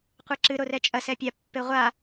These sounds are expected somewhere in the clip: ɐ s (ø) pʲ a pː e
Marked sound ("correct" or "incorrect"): incorrect